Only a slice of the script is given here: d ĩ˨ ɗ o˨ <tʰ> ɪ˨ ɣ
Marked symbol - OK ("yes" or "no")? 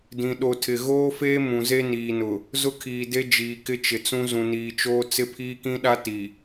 yes